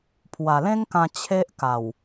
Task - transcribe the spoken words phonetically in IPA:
pʰwa˨˩lẽ˦ŋkã˧ t͡ɕʰe˦ʔka˨˩w

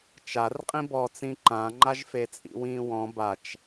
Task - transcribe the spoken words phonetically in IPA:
t͡ʃarqʼĩ bɔt͡sĩ ǃãŋ͡ǃaʒ fet͡sʼḭwĩːwɔ̃ bat͡ʃ

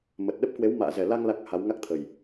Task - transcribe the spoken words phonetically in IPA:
mə˨˩t̚ɗə˦˥p̚kwe˨˦w ma̰ː˧˨zɛ˨˩la˧ŋ la˦˥k̚ha˨˦w ŋa˦˥k̚t̪ʰə˨˩j

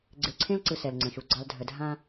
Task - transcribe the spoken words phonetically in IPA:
ɡ͡ǀe˨ǀʰẽ˦lǀɯ˨ sɛ˨lŋ͡ǀə̃˨ʃu˨ ɡ͡ǀɑ˨l dʱə˨dʱã˦

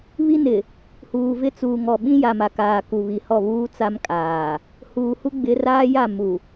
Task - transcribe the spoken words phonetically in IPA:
βi˦nɪ˨ | huː˨vɪ˦ t͡suː˨ŋɔ˨ ɓĩ˦ ja˨ma˨kaː˨ ku˨βi˨hɔ˦˨ βuː˦t͡sa˦m kʼaː˨ | huː˨hu˦ɡ͡bɪ˨˦raː˦ ja˦˨ mu˨

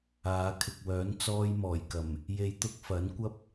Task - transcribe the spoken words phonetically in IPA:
aː˨˧kʰɪ˨k̚wœː˨˥n t͡sɔː˥jmɔː˨˩jkɐ˨˩m | je˧jt̪ʊ˥k̚fɐ˨˥n kʷɐ˥p̚

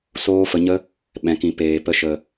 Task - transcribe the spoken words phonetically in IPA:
soː˦fə˧ɲə˦ | ɓɛ̃˨˦kĩ˧ peː˨pə˧ ʃə˨

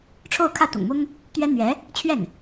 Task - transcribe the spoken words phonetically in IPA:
ʈ͡ʂʰo˥˧ʊ̯kʰä˥˩t̪ʊ̰˨˩ŋmʊ˥ŋ | t̪ɥɛ˥n̪ɥɛ˧˥ | t͡ɕʰɥɛ˥˩n

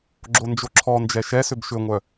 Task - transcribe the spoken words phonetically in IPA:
ɡ͡ǁond͡ʒoǁʰɔnd͡ʒɛ ʃɛsʏb ʃʏŋʷœ

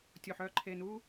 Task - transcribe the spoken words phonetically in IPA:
tʲo˨ħœ˦˨ǃʰe˨nu˦

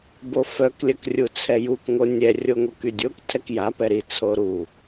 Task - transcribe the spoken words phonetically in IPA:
bofœk lʲœkrʲut͡sʰɛjuk ŋonʲɛ rʲoŋokydʲok tʰɛkja pɛɾi t͡sʰoɾu

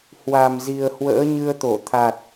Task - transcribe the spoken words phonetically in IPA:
hwa˨˩mzi˨˩ə̯ hwə̰ː˧˥ɲɨ˧ə̯t̪o˧˩ t̪ʰa˨˩t̚

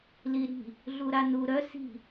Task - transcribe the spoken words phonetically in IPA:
liɾi̤ | ɮuɾanu ɾœ si̤

